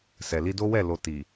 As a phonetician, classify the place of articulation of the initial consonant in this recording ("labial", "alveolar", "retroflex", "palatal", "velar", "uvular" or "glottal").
alveolar